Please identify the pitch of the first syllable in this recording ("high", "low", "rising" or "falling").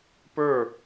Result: falling